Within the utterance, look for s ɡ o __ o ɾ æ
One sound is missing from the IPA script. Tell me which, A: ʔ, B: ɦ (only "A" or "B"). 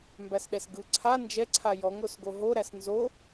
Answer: B